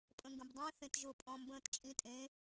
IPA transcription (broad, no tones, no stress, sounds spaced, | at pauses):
pʼ ə̃ ŋ ɡ ə̃ b dˤ ɛ̃ θ ẽ t ʒ ʊ pʼ ɔ̃ m b ə̃ː t t͡ʃʼ ĩ tʼ ẽ